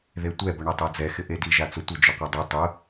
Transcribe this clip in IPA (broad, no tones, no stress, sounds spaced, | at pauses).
ð e tʷ ɛ b ʊ ɳ e tˤ a d͡z ɛ x ɪ ʔ e d i ʒ a t͡s ʊ tʷ ɪ d͡ʒ ʊ qʷ e dˤ i tˤ ʊ